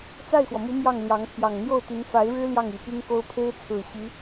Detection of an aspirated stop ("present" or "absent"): present